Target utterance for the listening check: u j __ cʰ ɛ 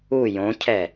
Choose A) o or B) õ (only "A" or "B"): B